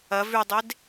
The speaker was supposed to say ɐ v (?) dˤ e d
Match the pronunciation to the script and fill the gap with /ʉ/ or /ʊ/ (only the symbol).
ʉ